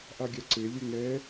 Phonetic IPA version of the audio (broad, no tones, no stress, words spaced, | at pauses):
ʔaɡʲaǀe lʲɵŋɛ